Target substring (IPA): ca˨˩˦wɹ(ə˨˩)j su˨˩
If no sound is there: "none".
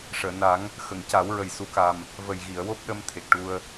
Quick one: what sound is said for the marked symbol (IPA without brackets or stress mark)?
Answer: ə˨˩